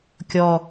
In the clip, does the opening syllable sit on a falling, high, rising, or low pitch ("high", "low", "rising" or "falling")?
low